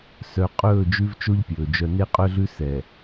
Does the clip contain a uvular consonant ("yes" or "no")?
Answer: yes